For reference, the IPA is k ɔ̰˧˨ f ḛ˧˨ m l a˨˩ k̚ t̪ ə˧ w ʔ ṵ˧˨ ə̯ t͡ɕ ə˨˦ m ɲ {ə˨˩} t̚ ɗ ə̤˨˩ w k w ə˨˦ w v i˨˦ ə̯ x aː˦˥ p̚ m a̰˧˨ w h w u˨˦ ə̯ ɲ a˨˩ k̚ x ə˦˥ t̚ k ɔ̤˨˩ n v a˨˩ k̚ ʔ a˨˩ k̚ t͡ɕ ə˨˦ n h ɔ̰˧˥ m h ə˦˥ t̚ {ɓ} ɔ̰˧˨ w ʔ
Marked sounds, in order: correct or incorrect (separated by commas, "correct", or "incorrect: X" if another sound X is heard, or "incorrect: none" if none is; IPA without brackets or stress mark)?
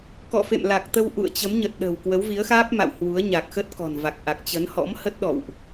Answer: correct, incorrect: ɗ